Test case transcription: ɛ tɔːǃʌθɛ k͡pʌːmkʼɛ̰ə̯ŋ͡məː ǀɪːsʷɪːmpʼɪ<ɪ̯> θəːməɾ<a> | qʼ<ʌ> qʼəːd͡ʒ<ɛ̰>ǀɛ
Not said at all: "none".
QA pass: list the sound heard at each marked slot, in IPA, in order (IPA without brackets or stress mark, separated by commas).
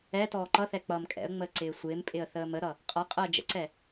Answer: ə̯, ʌ, ʌ, ə̰